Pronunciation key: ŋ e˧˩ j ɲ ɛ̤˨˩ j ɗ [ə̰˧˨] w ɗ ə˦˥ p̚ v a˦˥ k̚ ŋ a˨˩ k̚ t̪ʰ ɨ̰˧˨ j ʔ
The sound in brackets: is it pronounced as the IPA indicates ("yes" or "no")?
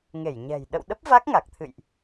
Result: yes